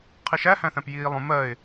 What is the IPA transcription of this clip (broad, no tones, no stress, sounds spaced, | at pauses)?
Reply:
qʰ i ʃ æ h æ̃ θ æ̃ p j iː lˠ ũ m ɜ ɪ̯